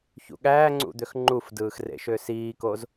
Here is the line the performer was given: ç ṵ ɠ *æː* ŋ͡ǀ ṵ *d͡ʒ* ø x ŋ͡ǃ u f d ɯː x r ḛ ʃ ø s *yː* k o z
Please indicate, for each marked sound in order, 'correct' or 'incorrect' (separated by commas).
correct, incorrect, incorrect